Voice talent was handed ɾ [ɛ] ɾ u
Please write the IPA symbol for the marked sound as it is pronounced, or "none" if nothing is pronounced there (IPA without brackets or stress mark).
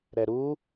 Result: ɛ